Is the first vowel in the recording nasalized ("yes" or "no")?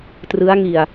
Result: no